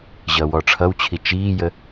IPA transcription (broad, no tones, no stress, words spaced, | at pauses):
ʑʌːwɔʈ͡ʂʰʌwt͡ɕʰi t͡ʃiːjə